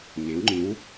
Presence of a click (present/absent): present